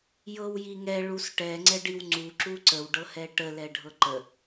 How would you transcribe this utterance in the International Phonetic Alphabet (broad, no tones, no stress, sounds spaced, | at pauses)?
j ɤ w j i ŋ ɛ ɭ u s ʈ ɛ ŋ͡ǀ ɛ ɖ i w ŋ͡ǀ u ǁ u ǀ ə w ɖ ɤ h ɛ ʈ ə l ɛ ɖʱ ɤ ǃ ə